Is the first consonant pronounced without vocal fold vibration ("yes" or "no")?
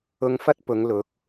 no